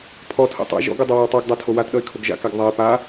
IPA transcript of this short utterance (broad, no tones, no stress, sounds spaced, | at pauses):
pʰ ɔ tʰ o̰ tˤ a̰ ʒ ɔ̰ ɡ o dˤ ʌ w o w tˤ o ɡ dˤ a tʰ o w a t ɗ ʌ ɪ̯ kʰ o ɡ ʒ a̰ k a ɡ ðˤ a ɪ̯ p a